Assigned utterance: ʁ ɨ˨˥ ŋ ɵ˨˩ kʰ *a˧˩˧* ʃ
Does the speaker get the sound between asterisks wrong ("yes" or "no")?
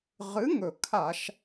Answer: no